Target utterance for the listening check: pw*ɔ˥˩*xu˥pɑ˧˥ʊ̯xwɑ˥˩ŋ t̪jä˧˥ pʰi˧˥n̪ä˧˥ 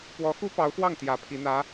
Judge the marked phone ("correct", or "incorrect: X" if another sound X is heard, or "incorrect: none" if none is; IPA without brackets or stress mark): incorrect: ɔ˧˥